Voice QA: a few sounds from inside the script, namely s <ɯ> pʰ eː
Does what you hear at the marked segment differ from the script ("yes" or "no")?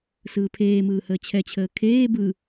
yes